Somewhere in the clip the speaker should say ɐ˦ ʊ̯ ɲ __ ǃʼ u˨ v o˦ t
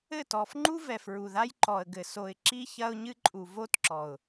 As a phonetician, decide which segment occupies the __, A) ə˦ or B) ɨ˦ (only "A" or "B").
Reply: B